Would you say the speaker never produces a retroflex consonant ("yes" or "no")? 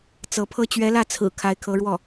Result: no